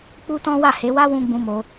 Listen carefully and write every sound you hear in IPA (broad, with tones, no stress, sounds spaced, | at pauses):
k͡p u˦ t ɔ̃˦ w a˦˨ h e˨˦ w a˦ w ũ˧ ɡ͡b ũ˧ m o˧